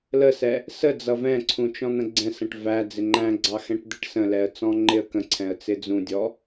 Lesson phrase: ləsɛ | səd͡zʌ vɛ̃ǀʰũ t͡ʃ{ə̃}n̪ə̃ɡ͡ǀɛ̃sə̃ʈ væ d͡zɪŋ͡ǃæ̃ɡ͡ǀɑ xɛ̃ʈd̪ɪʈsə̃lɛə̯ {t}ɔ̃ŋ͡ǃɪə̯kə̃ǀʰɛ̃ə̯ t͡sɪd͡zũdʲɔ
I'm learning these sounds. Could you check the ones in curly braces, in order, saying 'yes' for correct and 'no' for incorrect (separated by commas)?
no, no